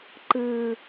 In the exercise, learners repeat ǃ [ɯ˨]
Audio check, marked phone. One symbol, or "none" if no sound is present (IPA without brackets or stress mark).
ɯ˨